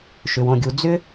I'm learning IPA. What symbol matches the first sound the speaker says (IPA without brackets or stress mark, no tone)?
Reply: ʃ